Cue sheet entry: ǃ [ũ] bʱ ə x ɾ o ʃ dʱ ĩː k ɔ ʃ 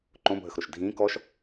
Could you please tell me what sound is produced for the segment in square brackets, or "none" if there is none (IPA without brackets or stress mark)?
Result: õ